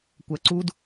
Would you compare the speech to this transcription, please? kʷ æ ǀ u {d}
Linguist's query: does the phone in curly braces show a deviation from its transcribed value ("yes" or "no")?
no